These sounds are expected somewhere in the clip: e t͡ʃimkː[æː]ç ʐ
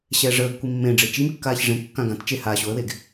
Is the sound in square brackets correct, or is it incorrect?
incorrect